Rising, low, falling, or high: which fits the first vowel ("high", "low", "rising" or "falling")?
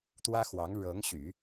high